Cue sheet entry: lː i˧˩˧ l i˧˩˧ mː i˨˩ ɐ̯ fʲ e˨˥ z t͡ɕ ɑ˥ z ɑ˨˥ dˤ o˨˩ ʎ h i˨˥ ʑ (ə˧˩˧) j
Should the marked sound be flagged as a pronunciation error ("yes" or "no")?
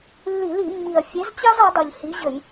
no